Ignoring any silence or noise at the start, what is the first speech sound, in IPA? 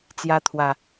t͡s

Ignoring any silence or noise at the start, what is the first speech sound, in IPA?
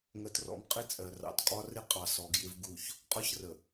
ŋ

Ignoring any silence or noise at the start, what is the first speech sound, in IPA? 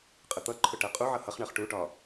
qʼ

